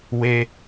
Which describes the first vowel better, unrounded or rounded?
unrounded